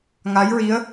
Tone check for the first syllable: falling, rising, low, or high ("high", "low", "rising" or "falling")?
rising